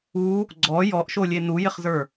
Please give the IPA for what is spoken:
u | ɡ͡ǀ ɔ j ɔ ʔ ʃ o lʲ e n u j ɪ χ z ə˞

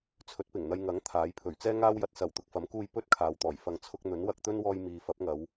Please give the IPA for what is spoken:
t͡sʰ ɵ˨˥ t̚ p ɪ˨˩ ŋ n̪ ɐ˧ j ŋ ɐ˨˥ ŋ t̪ʰ aː˨˥ j pʰ ɵ˨˩ ɥ t͡s ɛː˥ ŋ aː˥ w j ɐ˧ t̚ s ɐ˨˩ w t̪ ʊ˨ k̚ f ɐ˨˥ m k uː˧ j p ɵ˥ t̚ kʰ aː˨ w t̪ ɔː˨˩ j f ɐ˨ ŋ t͡sʰ ʊ˧ k̚ n̪ ɵ˨˥ n w ɐ˧ k̚ t̪ ɵ˥ n w ɔː˧ j m iː˨ f ɐ˨˥ p̚ ŋ ɐ˨˧ w

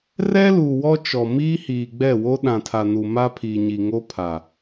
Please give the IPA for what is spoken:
r ɛ˦ l uː˨ w ɔ˦ t͡ʃ ɔ˨ m iː˦ h iː˨ ɡ͡b ɛ˦˨ w o˦ ɗ ã˨ tʰ a˨ n u˨ m a˦ pʰ iː˨ ɲ i˨ ŋ o˦ pʰ a˨

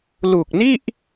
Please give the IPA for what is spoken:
l u˨˩ k̚ n i˥˩ ʔ

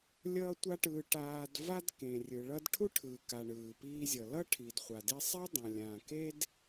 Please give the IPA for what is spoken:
lʲ ʌː˥ tʷ a˥ ʈ ɯː˧ ʈ aː˧ d v a˥ d k ẽ˩ rʲ ɯ˩ ɭ ʌ˧ d ʈʰ u˥ ʈʰ ɯː˩ k a˩ ɳ ɯː˩ p iː˧ zʲ ʌ˩ l ʌ˥ ʈʰ i˩ d χʷ a˩ d i˧ sˤ ɛ˥ dˤ ã˩ lʲ ãː˩ k e˥ d

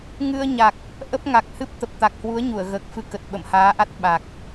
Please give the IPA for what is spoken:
ŋ ɨ˧ ə̯ ɲ a˨˩ k̚ | ʔ ə˦˥ p̚ ŋ a˨˩ k̚ h ɨ˦˥ p̚ t̪ ə˨˩ p̚ t̪ a˨˩ k̚ h w u˨˦ ə̯ ɲ u˧˩ ə̯ ɣ əː˨˩ k̚ f ɨ˧ k ə˨˩ t̚ ɓ ə̰˧˨ m h aː˨˦ ʔ a˦˥ t̚ ɓ a˨˩ k̚

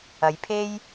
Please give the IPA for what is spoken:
ɐ˨˧ j pʰ e˥ j

